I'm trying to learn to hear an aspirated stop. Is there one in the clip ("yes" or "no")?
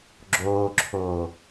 yes